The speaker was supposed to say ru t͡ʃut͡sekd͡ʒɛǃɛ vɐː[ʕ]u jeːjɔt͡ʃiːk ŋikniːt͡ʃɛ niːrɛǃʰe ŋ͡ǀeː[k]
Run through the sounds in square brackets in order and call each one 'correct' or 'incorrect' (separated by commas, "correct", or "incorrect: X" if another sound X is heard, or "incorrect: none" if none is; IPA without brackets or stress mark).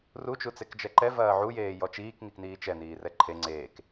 correct, correct